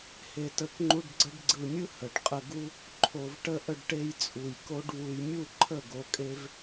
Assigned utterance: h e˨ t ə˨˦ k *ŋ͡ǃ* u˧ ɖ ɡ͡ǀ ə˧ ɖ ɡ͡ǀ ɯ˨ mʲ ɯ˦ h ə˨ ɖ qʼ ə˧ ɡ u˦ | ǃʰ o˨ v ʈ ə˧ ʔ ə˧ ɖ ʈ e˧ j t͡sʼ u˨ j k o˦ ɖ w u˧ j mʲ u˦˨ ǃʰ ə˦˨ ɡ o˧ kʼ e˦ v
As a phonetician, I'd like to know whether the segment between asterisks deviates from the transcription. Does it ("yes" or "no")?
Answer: no